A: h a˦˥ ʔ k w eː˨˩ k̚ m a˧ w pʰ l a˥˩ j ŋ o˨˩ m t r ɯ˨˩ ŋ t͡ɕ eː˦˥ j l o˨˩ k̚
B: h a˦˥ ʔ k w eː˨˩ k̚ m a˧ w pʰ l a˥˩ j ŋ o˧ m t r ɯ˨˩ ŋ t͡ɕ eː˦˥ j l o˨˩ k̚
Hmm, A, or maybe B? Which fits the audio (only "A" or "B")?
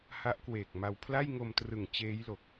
B